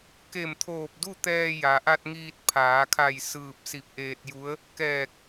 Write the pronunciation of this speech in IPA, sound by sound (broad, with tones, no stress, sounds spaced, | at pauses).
k e˧˩ m t̪ʰ oː˧˩ p̚ d u˥˨ t̪ ɛː˧ j a˩ ʔ a˧ t̚ ŋ iː˧ t̚ pʰ aː˩˧ kʰ a˧˩ j s ɯː˧˩ p̚ s i˧˩ p̚ ʔ eː˧ t̚ j u˧˥ ə̯ | k ɛː˧˩ k̚